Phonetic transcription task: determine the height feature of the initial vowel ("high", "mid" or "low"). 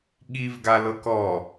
high